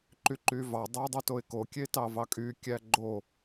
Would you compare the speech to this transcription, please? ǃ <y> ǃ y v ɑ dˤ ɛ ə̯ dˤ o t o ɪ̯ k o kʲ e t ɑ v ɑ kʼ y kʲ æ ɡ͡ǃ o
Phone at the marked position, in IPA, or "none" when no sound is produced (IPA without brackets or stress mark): y